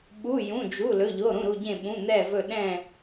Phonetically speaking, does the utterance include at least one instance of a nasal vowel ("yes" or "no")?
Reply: yes